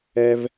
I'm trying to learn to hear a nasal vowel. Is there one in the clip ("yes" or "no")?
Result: no